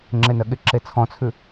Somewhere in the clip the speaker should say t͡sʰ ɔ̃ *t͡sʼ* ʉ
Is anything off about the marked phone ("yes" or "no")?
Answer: yes